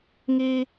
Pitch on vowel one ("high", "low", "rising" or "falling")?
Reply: high